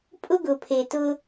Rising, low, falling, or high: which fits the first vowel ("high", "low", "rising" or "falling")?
high